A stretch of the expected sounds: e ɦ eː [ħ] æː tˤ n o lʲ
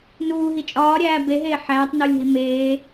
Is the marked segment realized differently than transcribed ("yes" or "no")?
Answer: no